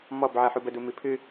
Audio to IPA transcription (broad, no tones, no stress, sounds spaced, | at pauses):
m ɔ b ʕ ɜ ħ u b ə d u m i pʰ ɨ